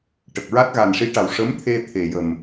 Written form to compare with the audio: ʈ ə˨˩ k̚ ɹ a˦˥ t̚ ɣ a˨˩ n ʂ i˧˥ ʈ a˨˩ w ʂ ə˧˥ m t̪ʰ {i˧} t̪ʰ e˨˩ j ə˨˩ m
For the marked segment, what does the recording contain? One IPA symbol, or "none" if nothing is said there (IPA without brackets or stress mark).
e˧